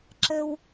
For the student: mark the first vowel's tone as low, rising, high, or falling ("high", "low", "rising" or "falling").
high